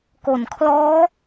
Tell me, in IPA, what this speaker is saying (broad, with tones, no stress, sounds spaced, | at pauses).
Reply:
k o˨˩ n kʰ l ɔː˦˥